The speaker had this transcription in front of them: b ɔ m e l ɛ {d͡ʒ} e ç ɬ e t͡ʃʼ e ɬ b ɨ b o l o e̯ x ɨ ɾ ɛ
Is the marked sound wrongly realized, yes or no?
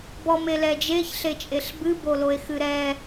no